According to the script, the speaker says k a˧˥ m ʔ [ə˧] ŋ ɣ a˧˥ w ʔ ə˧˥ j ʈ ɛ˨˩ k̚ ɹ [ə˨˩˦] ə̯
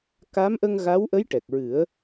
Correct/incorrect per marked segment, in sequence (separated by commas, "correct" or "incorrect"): correct, incorrect